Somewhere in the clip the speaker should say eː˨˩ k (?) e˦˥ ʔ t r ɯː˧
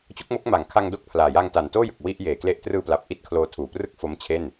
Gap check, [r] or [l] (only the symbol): l